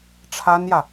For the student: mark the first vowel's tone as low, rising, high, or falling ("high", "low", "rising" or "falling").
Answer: high